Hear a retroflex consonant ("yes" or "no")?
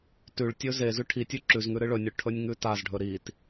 yes